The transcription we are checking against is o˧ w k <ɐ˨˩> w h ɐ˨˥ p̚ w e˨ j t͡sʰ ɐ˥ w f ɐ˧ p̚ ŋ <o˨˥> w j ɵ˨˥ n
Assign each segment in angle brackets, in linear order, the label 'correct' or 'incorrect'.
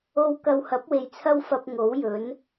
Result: incorrect: ɐ˧, correct

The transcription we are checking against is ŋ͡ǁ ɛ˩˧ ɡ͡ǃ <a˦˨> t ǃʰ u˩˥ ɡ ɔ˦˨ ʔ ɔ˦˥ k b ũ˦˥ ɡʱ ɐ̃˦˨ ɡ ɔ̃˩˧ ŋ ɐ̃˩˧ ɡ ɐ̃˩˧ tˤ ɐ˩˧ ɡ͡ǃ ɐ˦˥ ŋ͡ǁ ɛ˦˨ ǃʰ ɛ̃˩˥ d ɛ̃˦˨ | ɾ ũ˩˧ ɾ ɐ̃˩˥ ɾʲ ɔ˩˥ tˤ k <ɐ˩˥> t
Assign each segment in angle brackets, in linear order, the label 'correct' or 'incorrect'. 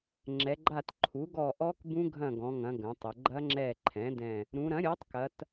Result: correct, incorrect: ɐ˩˧

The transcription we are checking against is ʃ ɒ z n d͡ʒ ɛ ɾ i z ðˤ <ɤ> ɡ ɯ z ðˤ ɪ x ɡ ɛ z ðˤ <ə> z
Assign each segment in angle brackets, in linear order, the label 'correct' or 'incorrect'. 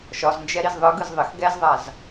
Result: incorrect: ɯ, incorrect: a

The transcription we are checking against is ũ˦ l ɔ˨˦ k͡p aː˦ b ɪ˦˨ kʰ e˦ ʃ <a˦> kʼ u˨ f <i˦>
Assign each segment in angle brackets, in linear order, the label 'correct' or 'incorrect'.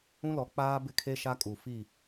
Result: correct, incorrect: i˦˨

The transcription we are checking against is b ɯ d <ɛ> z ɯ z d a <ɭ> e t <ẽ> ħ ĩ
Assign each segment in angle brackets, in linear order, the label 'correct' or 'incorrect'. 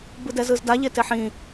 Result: correct, incorrect: ʎ, incorrect: e

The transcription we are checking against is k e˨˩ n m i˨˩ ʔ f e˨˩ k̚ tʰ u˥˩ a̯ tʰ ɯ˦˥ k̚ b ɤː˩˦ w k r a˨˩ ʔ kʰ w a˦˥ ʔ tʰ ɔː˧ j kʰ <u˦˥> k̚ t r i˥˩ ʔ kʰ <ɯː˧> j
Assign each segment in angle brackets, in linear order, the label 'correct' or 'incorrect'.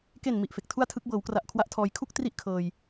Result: incorrect: u˥˩, incorrect: ɤː˧

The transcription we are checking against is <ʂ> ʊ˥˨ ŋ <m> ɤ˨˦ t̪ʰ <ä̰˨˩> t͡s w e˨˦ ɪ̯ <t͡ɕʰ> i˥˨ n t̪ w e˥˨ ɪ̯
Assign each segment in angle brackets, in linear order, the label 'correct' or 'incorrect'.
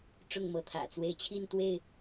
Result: incorrect: ʈ͡ʂ, correct, correct, correct

